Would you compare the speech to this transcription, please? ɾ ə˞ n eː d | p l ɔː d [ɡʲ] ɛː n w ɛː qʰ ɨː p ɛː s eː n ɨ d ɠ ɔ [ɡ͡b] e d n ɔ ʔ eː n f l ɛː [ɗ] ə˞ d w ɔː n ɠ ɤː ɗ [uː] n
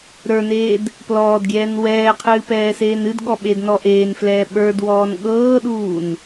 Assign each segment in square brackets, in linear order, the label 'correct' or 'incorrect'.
correct, incorrect: ɓ, incorrect: ɓ, correct

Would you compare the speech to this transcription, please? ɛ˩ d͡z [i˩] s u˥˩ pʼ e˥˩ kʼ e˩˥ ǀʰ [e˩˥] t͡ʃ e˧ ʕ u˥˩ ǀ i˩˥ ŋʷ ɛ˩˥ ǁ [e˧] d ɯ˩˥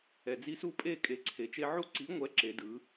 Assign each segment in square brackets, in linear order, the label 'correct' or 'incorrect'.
incorrect: i˧, incorrect: e˩, incorrect: e˩˥

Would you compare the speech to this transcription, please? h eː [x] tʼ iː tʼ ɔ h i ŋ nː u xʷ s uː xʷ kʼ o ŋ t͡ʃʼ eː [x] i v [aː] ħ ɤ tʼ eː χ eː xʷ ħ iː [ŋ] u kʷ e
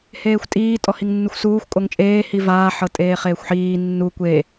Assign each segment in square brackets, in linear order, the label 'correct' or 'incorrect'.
incorrect: xʷ, incorrect: h, correct, incorrect: nː

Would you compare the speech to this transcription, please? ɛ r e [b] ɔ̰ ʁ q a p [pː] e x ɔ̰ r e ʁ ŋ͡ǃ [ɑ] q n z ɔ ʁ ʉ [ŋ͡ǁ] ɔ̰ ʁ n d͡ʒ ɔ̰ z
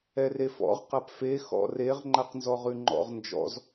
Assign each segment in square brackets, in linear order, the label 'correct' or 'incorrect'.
incorrect: f, incorrect: f, incorrect: a, incorrect: ŋ͡ǃ

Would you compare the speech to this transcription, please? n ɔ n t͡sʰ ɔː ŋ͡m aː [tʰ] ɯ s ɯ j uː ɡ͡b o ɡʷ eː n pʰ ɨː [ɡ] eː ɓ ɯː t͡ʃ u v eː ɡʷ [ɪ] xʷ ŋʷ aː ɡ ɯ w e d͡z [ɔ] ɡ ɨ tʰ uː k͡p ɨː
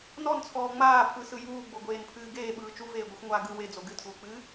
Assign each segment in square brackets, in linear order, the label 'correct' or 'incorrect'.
incorrect: pʰ, correct, incorrect: ɨ, incorrect: o

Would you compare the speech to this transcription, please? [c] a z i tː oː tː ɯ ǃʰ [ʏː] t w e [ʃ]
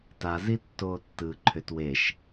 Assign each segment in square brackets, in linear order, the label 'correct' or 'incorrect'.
incorrect: t, incorrect: ʏ, correct

